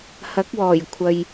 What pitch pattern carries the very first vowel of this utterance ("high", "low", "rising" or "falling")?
rising